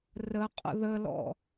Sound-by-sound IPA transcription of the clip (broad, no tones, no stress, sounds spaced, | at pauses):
r ə qʼ ə̰ ð ə l ɔ̰